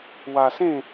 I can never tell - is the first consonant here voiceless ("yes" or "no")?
no